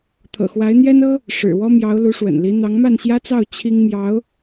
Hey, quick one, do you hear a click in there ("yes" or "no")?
no